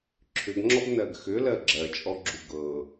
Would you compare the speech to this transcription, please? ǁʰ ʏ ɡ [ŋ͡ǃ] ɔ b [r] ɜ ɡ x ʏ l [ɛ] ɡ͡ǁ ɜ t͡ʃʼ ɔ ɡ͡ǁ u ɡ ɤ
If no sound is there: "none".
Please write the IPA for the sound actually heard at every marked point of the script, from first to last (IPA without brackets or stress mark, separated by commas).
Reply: ŋ͡ǁ, n, ɜ